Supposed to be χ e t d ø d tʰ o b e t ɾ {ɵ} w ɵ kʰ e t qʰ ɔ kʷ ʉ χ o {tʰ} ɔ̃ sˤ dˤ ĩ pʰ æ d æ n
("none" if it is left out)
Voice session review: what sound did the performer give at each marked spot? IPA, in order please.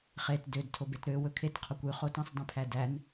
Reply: ø, t

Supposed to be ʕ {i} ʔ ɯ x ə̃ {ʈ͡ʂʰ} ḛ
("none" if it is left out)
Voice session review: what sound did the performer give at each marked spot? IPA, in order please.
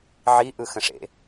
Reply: i, ʂ

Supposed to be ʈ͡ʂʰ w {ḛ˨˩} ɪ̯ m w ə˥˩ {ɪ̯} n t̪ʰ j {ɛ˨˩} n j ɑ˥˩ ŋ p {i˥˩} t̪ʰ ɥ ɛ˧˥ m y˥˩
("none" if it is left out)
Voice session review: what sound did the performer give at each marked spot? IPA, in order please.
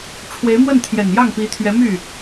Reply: e˧˥, none, ɛ˨˩, i˧˥

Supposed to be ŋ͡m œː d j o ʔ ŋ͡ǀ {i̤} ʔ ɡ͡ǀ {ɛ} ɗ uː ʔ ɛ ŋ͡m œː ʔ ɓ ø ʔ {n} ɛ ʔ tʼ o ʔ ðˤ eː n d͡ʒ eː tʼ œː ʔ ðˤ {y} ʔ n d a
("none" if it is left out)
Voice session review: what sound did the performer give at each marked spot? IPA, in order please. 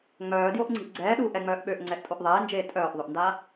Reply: i̤, ɛː, ŋ͡ǀ, ø

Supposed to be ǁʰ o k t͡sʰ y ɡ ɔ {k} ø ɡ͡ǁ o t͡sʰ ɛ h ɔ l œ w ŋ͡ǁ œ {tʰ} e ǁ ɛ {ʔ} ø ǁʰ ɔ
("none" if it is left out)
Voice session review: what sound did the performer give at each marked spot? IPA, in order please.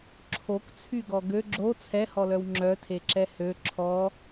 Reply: ɡ, tʰ, h

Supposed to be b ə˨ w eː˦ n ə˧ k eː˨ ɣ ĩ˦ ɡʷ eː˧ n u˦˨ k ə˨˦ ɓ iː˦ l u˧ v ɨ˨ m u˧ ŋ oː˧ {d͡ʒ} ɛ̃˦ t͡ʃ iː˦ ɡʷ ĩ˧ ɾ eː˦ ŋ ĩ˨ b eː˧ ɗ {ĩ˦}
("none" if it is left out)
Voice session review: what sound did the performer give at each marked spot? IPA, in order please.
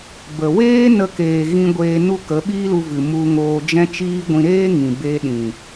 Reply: d͡ʒ, ĩ˨

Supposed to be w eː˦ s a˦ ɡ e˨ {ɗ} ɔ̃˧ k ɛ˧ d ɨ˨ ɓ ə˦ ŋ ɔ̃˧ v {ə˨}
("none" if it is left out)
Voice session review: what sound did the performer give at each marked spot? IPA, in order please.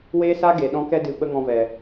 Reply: ɗ, ɛ˨

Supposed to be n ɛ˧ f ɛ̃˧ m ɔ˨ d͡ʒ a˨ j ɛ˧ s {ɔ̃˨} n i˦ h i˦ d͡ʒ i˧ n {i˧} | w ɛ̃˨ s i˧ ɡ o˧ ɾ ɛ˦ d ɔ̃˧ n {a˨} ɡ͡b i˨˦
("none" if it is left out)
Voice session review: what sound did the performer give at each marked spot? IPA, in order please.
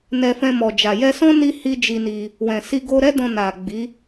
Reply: ɔ̃˦, i˧, a˨

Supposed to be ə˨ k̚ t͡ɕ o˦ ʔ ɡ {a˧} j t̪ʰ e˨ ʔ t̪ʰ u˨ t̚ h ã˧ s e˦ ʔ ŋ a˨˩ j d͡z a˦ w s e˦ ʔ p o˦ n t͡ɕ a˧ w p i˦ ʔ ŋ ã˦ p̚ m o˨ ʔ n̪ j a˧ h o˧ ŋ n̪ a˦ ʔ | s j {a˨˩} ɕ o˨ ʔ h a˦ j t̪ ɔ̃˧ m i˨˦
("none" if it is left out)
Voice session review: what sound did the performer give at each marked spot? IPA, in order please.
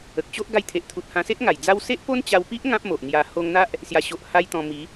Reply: a˧, a˨˩

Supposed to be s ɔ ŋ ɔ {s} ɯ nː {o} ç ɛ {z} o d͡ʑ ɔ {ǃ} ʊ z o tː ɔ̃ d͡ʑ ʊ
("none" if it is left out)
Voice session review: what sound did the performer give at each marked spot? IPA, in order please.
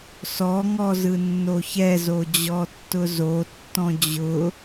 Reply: z, o, z, tː

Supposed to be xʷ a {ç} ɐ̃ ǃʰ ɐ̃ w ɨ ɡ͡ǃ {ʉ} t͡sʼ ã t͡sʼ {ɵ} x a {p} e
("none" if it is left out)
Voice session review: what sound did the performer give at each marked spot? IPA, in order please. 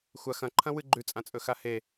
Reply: x, ʉ, ɵ, h

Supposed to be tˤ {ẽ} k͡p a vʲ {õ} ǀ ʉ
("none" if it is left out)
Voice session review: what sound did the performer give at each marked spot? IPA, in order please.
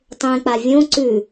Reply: ẽ, õ

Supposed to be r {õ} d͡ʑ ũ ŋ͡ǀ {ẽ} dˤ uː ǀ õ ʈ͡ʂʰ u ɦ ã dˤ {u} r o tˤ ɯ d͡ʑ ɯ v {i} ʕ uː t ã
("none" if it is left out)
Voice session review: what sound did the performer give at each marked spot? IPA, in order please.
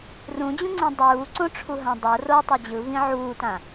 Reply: ũ, ẽ, o, ĩ

